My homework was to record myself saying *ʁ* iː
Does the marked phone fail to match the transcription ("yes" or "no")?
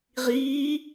no